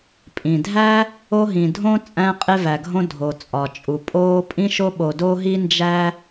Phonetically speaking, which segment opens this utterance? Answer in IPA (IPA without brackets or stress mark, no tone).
pʼ